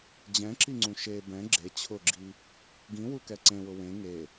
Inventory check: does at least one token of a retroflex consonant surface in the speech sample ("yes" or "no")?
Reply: no